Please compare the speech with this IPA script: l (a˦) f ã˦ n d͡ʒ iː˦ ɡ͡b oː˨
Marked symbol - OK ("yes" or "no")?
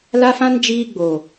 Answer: yes